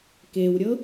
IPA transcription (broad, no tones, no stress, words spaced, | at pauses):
kewɾʲɤ